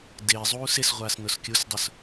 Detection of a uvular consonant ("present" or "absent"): present